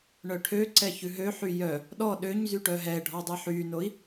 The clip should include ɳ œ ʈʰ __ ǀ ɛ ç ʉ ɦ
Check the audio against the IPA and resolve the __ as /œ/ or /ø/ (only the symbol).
ø